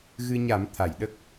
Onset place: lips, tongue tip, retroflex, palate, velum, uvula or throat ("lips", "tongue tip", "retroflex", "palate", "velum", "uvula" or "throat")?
velum